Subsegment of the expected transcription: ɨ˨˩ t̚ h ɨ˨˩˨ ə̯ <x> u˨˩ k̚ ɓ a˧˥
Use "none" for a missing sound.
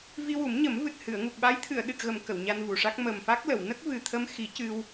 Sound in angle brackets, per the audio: ŋ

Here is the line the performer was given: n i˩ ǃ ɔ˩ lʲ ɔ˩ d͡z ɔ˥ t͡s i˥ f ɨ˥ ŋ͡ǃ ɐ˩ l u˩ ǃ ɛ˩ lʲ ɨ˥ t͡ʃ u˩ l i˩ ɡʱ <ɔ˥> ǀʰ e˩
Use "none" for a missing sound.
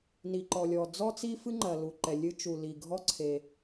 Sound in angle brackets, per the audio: ɔ˥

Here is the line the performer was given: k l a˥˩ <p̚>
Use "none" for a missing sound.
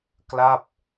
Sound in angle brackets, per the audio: p̚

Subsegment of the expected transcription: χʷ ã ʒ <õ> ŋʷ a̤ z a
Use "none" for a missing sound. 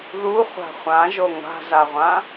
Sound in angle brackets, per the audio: o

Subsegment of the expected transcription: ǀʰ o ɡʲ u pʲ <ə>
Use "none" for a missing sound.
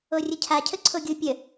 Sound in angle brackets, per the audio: ə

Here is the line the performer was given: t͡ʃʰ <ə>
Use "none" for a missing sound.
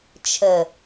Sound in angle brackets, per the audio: ə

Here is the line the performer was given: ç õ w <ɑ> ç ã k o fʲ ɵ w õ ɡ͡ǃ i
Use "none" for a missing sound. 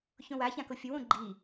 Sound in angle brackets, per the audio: a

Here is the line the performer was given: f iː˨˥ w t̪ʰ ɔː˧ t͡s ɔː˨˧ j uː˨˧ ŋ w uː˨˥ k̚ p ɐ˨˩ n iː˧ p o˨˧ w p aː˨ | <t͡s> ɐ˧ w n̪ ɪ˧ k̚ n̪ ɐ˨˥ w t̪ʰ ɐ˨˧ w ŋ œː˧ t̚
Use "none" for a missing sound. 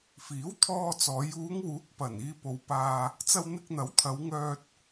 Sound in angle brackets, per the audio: t͡s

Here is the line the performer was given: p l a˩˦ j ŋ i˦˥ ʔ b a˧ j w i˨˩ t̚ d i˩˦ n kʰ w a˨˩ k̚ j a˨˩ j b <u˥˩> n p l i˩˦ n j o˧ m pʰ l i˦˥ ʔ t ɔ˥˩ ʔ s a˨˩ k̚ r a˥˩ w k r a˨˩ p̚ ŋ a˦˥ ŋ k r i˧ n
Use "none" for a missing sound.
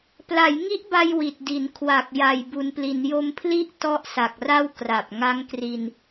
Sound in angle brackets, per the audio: u˩˦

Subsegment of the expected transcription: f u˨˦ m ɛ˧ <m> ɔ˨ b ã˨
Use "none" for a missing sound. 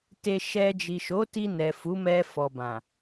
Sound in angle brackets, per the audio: f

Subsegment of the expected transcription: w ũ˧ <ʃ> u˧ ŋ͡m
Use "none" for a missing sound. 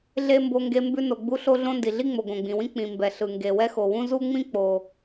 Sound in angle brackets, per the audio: z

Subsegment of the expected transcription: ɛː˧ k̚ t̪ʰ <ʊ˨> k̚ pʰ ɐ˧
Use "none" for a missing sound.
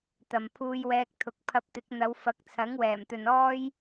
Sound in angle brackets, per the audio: ʊ˨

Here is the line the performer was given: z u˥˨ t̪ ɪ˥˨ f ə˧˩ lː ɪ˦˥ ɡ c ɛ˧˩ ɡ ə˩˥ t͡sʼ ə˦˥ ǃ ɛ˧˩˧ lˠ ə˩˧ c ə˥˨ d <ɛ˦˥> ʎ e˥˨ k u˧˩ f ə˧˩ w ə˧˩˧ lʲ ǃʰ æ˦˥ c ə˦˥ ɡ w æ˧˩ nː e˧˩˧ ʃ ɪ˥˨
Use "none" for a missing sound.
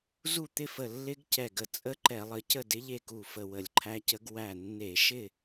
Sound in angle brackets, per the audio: ɪ˦˥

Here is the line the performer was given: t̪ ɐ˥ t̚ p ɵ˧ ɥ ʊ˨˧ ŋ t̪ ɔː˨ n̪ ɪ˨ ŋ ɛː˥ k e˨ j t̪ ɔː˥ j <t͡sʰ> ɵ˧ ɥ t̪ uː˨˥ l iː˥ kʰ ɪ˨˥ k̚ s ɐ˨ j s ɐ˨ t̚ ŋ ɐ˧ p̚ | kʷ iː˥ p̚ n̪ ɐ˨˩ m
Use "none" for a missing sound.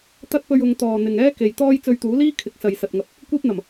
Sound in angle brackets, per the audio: t͡s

